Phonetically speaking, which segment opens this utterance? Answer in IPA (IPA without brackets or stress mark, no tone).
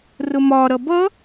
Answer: r